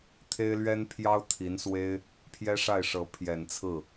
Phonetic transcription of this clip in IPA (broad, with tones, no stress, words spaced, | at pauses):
t̪ʰe˥ɪ̯lɥɛ˥npʰjɑ˥ʊ̯ t̪ʰi˧˥nswe˥ɪ̯ | pʰjɛ˥ʂa˥˩ɪ̯ʂɤ˧˥ pʰjɛ˨˩nt͡sʰɹ̩˥˩